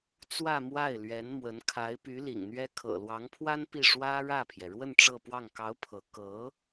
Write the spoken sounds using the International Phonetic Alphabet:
t͡s w ä˥˧ m w a˥˩ ɪ̯ l ɥ ɛ˧˥ n m w ə˧˥ n kʰ a˧˥ ɪ̯ p y˧˥ l ḭ˨˩ ŋ n̪ ɥ ɛ˥ kʰ ɤ̰˨˩ l w ɑ˧˥ ŋ pʰ w a˥ n p i˥˩ ʂ w ä˥ ɻ ä˥˩ pʰ j ɛ˩ ɻ w ə˥˧ n ʈ͡ʂ ɤ˥˧ p w ɑ˥˩ ŋ k ɑ˧˥ ʊ̯ pʰ ɤ˧˥ k ɤ˧˥

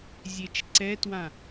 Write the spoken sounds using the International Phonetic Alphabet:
zʲ e t͡ʃ ǀ ɛ t w ã

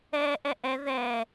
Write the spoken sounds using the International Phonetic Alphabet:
ɛː ʔ ɛ ʔ ɛ ð ɛ

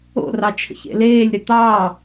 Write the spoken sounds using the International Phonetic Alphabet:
o̰ r ɑ t͡ʃʰ ə̰ ç ḛ l eː lʲ ɾ ʏ t̪ ɑː

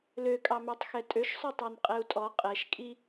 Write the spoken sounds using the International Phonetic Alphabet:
l ø kʼ ɑ m ø tˤ x ɛ tʼ ø ʃ sˤ ø tˤ ɑ n qʼ ɛ u̯ tʼ ɔ qʼ ɛ ʃ kʼ i

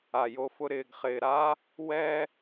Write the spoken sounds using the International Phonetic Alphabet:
a˨ j o˧ f ʊ˧ ɾ ɪː˨ ɡ χ ɪː˨ ɾ a˦ | w ɛ˦

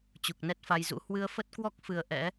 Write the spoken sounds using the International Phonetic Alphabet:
t͡ɕ u˨˩ k̚ n ɛ˦˥ t̚ f a˧ j z ṵ˧˥ h w ɨ˧ ə̯ f ə˦˥ t̚ k w ɔ˦˥ k̚ f ɨ˨˩ ə̯ ʔ ɛ̰˧˥

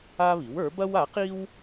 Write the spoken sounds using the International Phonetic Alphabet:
a˥ β i˩˥ w ə˞˩˥ b ɐ˥ w a˩˥ q i˥ w

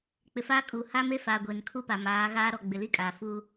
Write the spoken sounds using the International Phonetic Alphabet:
k͡p ɪ˨ f aː˦ kʼ uː˨ h a˦ m e˦ f aː˨ ɡʷ e˨ n kʰ u˦ p a˨ m aː˨˦ ɣ aː˦ ɾ ɔ˦˨ ɡ͡b ɪ˨ l i˦ kʼ aː˨ f uː˦

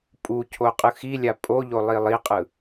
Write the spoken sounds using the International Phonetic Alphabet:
pʼ u cʰ o qʼ ɯ x i lʲ a pʼ o ʎ o lˠ i lˠ i qʼ ɯ

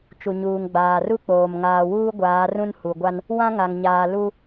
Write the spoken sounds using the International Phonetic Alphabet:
t͡ʃ u˨ ɲ uː˨ ŋ ɡ͡b aː˨ r u˦ k͡p oː˨ m ŋ aː˨ w uː˦ ɡʷ aː˨˦ r ũ˦ n h u˨ ɡʷ a˦ n | w ã˦ ŋ a˨ ŋ ɲ aː˨ l u˦

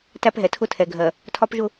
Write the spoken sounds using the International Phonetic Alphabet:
t æ˦ p ɦ ɛ˨ tʰ ʊ˦ tʰ ɛ˨ ɡʱ ɜ˨ | tʰ ɒ˦ p ʒ ʊ˦˨

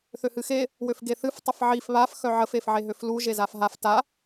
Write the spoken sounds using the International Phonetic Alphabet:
θ ø h ɨ x e | w ø f ɡ e θ ɨ f tˤ ə f ʕ i f β a f x œ ʕ ə f e f ʕ e ɦ ø f l u ʒ e z a f ɦ a f t a

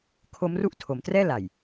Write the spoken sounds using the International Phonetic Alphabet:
kʰ o˦˥ m r u˥˩ ʔ tʰ o˩˦ m t r ɛː˥˩ l a˨˩ j

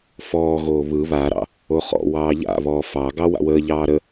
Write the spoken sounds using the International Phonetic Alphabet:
f ɔː ɣ oː β ɯ β a ɾ ɑ̰ | o χ ɔ̰ w ɑː ʎ a̰ β ɔ f ɑ ɡ ɑ w a̰ w əː ʎ ɑː ɾ ə

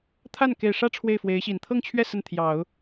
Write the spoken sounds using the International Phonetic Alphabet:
t̪ʰ a˥˩ n k e˨˩ ɪ̯ ʂ ä˥˧ ʈ͡ʂʰ w e˥˩ ɪ̯ f w e˧˥ ɪ̯ ɕ i˨˩ n t̪ʰ ɤ˥˧ ŋ t͡ɕʰ ɥ ɛ˥˧ s ə˥˩ n t̪ʰ j ɑ˨˩˦ ʊ̯

